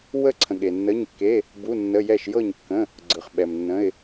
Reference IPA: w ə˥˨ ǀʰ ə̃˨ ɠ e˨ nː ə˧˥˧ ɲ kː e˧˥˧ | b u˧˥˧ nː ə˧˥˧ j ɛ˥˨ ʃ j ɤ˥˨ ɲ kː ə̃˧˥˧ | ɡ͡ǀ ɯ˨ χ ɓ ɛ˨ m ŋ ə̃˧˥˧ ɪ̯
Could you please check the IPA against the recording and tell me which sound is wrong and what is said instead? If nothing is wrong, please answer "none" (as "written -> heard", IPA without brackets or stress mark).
ŋ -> nː